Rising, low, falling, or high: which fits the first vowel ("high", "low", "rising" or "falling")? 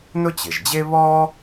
high